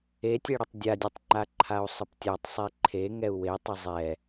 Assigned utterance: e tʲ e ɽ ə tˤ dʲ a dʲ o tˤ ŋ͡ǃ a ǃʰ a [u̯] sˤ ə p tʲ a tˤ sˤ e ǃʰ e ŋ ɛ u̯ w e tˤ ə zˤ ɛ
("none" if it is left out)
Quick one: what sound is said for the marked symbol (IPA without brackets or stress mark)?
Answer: u̯